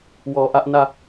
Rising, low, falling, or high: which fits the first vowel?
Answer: low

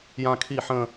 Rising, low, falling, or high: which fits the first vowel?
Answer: falling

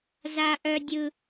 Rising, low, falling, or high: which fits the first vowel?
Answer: high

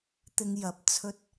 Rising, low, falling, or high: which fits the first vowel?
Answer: low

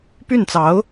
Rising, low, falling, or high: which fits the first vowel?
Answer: falling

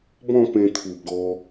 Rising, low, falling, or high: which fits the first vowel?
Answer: falling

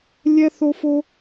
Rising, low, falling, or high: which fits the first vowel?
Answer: high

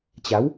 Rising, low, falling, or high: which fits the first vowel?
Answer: rising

